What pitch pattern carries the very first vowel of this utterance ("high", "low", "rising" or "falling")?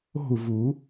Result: falling